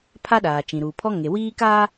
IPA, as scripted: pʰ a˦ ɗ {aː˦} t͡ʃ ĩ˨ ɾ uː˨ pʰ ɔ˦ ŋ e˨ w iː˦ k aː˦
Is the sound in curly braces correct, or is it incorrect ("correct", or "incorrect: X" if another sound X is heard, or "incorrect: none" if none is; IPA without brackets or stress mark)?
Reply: incorrect: aː˨